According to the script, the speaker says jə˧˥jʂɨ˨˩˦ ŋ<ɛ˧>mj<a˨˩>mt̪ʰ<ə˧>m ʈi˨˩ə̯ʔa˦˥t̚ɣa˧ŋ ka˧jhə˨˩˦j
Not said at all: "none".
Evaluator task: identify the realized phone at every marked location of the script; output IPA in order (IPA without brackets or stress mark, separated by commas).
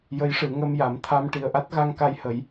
ə˧, a˨˩˦, a˧